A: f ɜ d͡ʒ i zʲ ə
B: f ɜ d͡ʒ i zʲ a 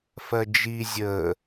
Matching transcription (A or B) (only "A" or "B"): A